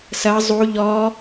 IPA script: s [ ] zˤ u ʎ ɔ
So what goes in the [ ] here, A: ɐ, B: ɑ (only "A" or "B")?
A